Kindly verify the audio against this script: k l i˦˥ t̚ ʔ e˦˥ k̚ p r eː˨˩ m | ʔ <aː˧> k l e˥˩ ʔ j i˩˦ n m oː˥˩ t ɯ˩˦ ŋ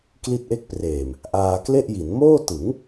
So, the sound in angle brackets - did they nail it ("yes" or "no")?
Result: yes